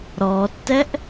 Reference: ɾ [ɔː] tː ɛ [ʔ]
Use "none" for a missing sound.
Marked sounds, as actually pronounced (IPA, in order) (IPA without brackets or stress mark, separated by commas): ɔː, ʔ